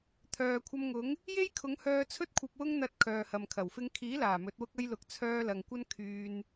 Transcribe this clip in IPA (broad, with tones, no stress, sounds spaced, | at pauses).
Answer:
t̪ʰ œː˨ kʷʰ ɐ˧ m ŋ ʊ˨˥ ŋ | j e˥ j kʰ ʊ˨˧ ŋ h œː˧ t͡sʰ ɵ˥ t̚ kʷʰ ɐ˧ p̚ w ʊ˥ ŋ n̪ ɐ˧ t̚ kʰ œː˨ h ɐ˨ m kʰ ɐ˨˩ w f ɪ˧ ŋ kʰ iː˨˥ l aː˨˩ m ɵ˨˥ t̚ w ʊ˥ k̚ ɐ˥ j l ʊ˨˥ k̚ t͡sʰ œː˧ l ɐ˨ ŋ kʷ ɐ˥ n kʰ yː˧ n